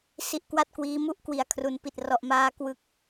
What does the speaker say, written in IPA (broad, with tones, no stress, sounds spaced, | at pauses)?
s i˦˥ ʔ k w a˥˩ t̚ k w iː˦˥ m u˦˥ ʔ k w i˩˦ a̯ kʰ r u˩˦ n p i˨˩ t̚ r ɔ˨˩ ʔ m aː˧ k w ɯ˦˥ k̚